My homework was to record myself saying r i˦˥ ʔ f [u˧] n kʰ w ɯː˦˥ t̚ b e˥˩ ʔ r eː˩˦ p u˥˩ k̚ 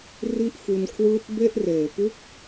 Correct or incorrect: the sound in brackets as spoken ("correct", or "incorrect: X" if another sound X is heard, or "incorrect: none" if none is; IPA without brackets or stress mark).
correct